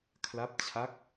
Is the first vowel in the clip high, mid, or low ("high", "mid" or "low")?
low